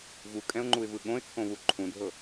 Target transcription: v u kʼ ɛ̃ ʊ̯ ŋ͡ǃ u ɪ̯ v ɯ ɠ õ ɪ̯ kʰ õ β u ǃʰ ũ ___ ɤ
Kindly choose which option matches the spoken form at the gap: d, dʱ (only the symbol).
dʱ